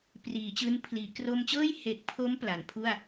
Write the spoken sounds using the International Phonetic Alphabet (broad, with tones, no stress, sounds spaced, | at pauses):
p r iː˩˦ t͡ɕ ɯː˦˥ n pʰ l iː˩˦ k r o˧ m t͡ɕ ɤː˥˩ j h e˨˩ k̚ pʰ o˦˥ m p l a˩˦ n pʰ u˥˩ a̯